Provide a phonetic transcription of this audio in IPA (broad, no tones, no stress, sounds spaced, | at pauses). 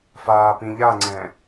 f aː p ĩ ʎ a ŋ͡ǀ ɛ̃ː